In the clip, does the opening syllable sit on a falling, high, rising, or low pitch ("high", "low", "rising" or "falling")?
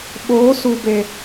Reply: rising